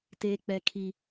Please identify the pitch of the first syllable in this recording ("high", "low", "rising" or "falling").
high